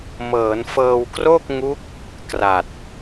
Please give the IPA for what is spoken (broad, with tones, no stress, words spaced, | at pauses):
mɤː˩˦nfɤː˧w kro˥˩k̚ŋu˦˥k̚ | kra˨˩t̚